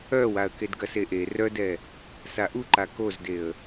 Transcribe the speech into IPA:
œwaə̯ kedɡɐseʔe rœdɛ | saʔuǃa kozdeə̯

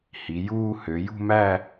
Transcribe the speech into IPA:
hi˩˧juː˥˧ hø˩˧jṳ˥˧mæ˥˧

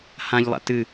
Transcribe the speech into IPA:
hãʎlˠa̰ tɨ

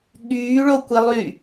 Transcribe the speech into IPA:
ɠyːɭokʷilˠy

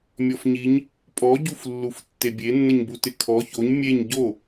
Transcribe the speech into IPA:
mʲɔfɲiɲ | pʼɔɟuflːuf tːebʲenːəɲbu tɪkʰɔ çoɲ mʲeɲ ɟo

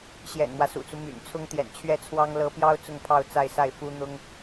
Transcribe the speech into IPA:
ɕjɛ̰˨˩nmwä˦sṵ˨˩t͡su˦ my̰˨˩n t͡sʰʊ˥ŋt̪jɛ̰˨˩n t͡ɕʰɥɛ˥˩t͡sʰwɑ˥ŋ lɤ˧˥pjɑ˥ʊ̯ t͡sʊ˥˧ŋpʰɑ˥˧ʊ̯ t͡sa˥˧ɪ̯sa˥˩ɪ̯ fu˥ n̪ʊ˥ŋ

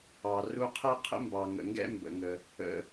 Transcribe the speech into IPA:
ɑ˩ ru˧qʰɛ˥ qʰə̰˥mbɑ˩ŋə̰˩ŋɡɛ̰˥ mbə̰˩ŋə˩ | ə̰˩

